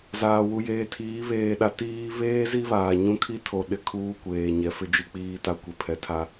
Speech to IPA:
z aː˨ w u˨ j eː˨ tʰ iː˨˦ β eː˨ ɗ a˨ t iː˦ β eː˦ z i˦ β aː˨ ɲ ũ˦ kʰ i˦ tʰ o˨ ɗ ɪ˦ kʰ uː˦ kʷ eː˨ ɲ ɛ˨˦ f ɪ˦ d͡ʒ i˦ k͡p iː˦ t a˦ kʷ i˨ pʰ ɛ˨˦ tʰ a˦

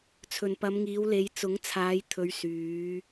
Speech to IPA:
t͡sʰ ɵ˨ n p ɐ˨˧ m ŋ iː˨˧ w l e˨˧ j t͡s ʊ˨˥ ŋ t͡sʰ aː˨˧ j t̪ʰ ɵ˨˧ ɥ s yː˨˧

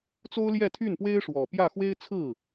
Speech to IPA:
t͡s o˥ ʊ̯ l j ɛ˥˧ t̪ʰ y˥˩ n p w e˥ ɪ̯ ʂ w ɔ˨˩ p j ä˥˩ x w e˥ ɪ̯ t͡sʰ ɹ̩˥˩

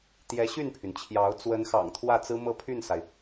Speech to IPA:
t̪ j ɛ˧˥ ɕ y˥˩ n pʰ y˩ n t͡ɕʰ j ɑ˧˥ ʊ̯ t͡s w ə˧˥ n x ɑ̰˨˩ ŋ t̪ʰ w ä˥˩ t͡s ɹ̩˥ m ɤ˥˧ pʰ y˥˩ n s a˩ ɪ̯

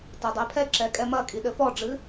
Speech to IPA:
t ɐ dˤ e pʰ ɛ ǁ ɛ kʼ ɛ m ɐ kʼ i ɗ ɘ f ɔ ɖ͡ʐ ɨ

